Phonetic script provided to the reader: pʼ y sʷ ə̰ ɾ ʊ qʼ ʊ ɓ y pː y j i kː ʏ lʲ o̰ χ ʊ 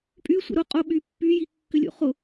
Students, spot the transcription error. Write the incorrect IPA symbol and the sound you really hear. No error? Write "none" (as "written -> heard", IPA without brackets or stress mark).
none